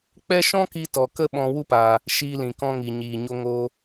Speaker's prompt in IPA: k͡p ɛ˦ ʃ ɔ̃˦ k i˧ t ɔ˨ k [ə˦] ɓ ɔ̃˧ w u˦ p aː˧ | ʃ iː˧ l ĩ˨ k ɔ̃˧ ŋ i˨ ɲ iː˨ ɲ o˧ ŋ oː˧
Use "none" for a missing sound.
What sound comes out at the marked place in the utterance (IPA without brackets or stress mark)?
ə˦